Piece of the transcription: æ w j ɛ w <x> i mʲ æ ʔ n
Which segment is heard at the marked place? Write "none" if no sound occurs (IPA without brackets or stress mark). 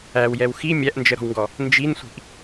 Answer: x